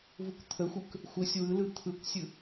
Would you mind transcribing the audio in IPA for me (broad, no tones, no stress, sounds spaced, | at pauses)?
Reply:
v u kʷ t̪ʰ ə xʷ ɯ k | xʷ ə sʲ w ɯ l ɯ t̪ʰ ɯ kʷ sʲ ɯ